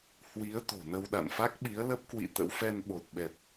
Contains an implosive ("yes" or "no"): yes